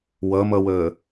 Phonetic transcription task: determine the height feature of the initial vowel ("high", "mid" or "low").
mid